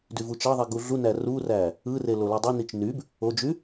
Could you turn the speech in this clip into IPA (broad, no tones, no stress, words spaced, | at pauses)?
dyvut͡ʃɑðˤi ɡuɮunæ ruræ | ɯre lolydˤenit͡ʃ nyb | od͡ʒy